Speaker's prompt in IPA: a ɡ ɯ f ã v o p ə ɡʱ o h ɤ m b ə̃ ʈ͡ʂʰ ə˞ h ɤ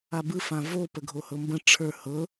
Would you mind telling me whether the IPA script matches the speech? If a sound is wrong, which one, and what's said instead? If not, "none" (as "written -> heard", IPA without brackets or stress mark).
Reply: ɡ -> b